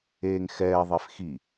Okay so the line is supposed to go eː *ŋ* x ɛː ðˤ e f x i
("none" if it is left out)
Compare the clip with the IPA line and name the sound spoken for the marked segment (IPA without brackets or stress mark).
ŋ